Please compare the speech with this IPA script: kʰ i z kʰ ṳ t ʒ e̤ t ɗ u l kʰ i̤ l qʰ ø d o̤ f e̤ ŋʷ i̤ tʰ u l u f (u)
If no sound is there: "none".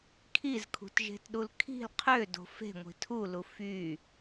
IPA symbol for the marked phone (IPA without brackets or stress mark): y